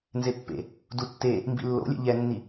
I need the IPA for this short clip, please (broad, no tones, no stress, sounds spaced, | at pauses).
n z e pː ḛ | d u tː e | m b ḭ lː o̰ lʲ ɛ̰ ʎ ɛ nː i